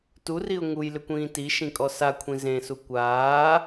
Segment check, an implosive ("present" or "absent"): absent